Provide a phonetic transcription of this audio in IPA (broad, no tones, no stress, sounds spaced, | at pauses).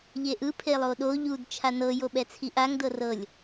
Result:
ʎ e ʔ ɯ pʰ e lˠ o ɗ o ʎ u d t͡ʃʰ a n ɤ j o ɓ ɛ t͡sʰ i ʔ a ŋ d ɤ r ɤ lʲ